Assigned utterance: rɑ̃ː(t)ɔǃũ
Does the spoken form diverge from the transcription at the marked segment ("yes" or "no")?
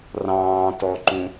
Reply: no